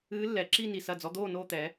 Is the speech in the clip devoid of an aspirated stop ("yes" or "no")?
yes